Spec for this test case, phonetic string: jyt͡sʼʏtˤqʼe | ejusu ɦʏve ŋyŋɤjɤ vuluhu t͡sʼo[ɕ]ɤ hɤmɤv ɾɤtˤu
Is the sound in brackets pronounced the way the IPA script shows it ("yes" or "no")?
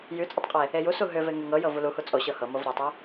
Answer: yes